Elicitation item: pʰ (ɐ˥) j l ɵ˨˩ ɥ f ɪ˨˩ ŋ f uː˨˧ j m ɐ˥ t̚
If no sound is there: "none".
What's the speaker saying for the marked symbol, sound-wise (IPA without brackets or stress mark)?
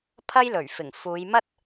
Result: ɐ˥